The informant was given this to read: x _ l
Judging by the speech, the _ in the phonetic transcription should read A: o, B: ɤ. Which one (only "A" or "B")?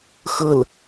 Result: B